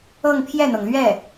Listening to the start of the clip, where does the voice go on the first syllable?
falling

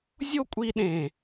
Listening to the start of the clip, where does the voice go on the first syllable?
high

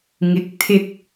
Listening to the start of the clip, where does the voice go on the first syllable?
rising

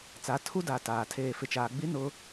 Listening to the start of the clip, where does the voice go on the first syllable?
rising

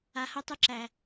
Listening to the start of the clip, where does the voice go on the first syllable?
low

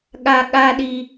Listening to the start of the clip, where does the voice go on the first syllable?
high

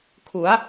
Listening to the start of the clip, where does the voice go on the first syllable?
rising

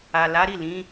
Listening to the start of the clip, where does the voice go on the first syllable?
low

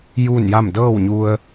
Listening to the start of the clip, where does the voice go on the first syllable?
falling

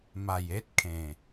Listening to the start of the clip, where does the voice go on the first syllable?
low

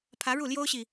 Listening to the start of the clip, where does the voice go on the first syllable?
rising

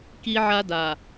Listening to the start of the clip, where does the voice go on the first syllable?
high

